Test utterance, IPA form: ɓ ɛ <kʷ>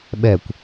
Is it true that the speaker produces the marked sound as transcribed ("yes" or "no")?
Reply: yes